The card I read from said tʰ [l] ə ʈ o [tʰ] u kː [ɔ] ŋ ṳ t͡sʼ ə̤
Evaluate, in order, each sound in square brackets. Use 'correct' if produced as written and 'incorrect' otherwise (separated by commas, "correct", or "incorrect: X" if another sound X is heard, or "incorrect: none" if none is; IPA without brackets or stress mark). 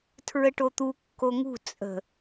incorrect: ɹ, incorrect: t̪, incorrect: o